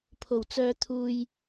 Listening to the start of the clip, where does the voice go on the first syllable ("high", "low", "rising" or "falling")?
low